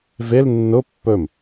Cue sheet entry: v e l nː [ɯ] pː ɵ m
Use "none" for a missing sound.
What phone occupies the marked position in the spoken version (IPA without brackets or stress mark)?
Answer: ʊ